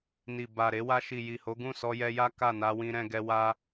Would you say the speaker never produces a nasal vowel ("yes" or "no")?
no